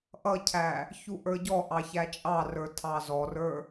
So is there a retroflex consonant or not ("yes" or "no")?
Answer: no